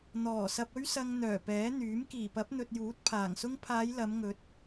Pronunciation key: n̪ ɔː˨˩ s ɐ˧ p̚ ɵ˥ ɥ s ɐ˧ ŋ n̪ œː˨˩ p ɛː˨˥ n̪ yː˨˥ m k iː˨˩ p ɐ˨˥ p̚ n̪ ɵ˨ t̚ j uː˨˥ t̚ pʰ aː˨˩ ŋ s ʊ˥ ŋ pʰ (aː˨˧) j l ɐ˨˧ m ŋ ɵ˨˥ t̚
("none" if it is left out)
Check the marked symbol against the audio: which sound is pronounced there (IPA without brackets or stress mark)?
aː˨˧